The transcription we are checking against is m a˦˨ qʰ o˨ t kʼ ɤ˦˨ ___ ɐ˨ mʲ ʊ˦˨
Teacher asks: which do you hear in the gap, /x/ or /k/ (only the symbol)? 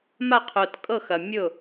x